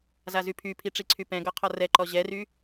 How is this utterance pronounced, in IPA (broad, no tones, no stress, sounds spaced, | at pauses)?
z a z y pʰ y pʰ i ʈ͡ʂ i ǀʰ y p ɛ̃ ɡ ɔ qʰ ɔ r ɛ ǃ ɔ ʑ ɛ r y